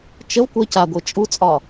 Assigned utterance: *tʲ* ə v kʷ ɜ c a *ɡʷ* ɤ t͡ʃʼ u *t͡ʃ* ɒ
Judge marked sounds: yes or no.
no, yes, no

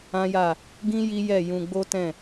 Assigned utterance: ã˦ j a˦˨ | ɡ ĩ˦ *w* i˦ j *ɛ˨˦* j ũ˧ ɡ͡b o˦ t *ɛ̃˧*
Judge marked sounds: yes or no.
no, no, no

